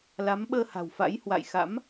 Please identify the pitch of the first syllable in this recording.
rising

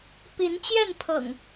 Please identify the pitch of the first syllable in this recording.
rising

